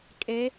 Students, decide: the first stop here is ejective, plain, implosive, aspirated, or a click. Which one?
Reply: ejective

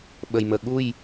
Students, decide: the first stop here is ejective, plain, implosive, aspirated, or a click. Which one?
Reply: implosive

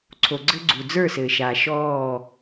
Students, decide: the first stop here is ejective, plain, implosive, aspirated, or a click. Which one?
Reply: click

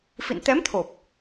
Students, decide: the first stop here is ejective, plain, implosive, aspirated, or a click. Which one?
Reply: plain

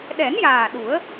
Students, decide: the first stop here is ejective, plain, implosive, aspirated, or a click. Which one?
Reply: implosive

